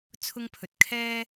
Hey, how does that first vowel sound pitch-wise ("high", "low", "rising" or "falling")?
high